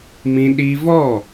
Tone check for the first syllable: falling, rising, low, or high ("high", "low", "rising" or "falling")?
high